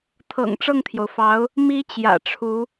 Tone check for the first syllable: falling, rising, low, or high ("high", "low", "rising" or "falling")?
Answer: low